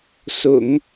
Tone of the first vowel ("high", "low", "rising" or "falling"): low